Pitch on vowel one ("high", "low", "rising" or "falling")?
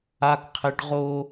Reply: high